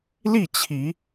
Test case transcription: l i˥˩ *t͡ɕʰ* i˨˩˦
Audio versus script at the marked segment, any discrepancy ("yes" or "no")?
no